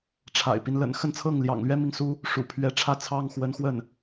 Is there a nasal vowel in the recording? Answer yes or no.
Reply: no